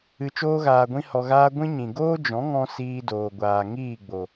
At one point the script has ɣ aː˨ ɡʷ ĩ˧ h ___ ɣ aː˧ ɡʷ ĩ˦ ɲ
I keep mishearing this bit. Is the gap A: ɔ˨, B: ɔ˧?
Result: A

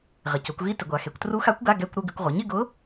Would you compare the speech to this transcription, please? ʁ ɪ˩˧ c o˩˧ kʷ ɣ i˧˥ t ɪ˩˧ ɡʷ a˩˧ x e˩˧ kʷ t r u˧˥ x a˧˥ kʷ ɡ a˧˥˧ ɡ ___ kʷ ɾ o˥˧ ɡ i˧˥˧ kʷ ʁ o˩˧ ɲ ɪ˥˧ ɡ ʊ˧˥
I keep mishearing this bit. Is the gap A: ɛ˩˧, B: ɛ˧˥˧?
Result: B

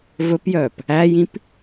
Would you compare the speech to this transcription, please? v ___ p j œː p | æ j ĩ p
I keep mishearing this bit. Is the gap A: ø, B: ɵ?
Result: B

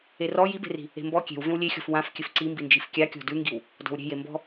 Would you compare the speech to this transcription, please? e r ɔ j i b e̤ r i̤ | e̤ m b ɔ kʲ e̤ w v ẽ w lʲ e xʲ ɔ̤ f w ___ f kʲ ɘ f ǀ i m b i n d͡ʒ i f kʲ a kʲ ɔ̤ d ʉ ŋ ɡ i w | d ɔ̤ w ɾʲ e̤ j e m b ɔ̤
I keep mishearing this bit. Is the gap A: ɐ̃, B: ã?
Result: B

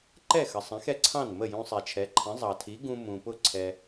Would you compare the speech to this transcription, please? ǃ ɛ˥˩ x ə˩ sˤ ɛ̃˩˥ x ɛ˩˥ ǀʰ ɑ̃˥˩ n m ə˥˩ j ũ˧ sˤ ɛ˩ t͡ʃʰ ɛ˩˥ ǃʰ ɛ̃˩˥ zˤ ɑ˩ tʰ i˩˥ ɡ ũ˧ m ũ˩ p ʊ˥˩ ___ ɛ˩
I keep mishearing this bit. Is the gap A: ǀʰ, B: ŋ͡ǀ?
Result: A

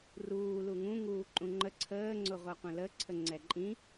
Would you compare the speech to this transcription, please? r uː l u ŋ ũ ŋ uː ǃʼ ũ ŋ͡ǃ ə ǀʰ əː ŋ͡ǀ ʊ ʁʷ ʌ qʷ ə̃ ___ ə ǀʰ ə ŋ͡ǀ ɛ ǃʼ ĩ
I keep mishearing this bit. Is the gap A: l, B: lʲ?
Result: A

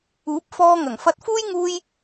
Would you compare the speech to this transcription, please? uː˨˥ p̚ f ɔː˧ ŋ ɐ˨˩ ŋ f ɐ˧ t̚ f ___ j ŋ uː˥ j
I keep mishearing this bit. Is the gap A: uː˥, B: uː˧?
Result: A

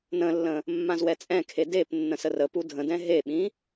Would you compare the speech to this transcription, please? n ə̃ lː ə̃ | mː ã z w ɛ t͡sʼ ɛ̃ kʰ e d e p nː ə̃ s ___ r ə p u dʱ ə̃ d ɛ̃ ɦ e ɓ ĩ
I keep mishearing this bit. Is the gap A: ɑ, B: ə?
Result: B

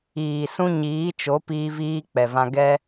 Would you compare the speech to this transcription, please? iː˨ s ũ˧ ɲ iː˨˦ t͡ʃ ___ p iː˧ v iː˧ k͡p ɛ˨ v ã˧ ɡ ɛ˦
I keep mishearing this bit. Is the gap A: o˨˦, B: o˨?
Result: A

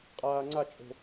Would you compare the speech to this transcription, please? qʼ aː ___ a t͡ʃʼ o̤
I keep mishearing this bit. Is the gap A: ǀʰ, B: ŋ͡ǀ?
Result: B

